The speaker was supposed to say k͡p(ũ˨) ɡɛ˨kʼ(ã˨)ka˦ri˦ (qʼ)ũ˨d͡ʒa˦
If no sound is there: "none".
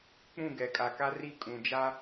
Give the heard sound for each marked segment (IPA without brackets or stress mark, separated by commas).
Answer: ũ˦˨, a˨, kʼ